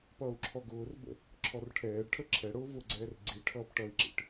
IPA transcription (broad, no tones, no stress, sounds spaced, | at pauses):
p ʌː u̯ ǁʰ ɔ ɡ ʊː r b ə̰ | ǁʰ ɔ r ʈʰ ɛː ɖ ʈʰ ə ǁʰ ɛ ɽ ʊː v ʊ ɡ͡ǀ ɛː r ɡ͡ǀ i ʈʰ ʌː p ʈ ʌ i̯ ǁ ḭ ʈ